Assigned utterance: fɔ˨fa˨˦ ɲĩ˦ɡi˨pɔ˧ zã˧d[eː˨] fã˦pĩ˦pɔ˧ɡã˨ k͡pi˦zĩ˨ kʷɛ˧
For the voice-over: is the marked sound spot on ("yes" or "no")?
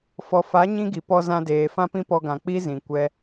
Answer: yes